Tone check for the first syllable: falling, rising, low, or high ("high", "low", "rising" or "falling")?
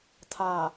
low